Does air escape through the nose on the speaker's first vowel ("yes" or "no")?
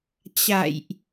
no